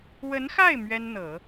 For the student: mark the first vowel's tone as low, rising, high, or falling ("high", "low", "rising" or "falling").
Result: rising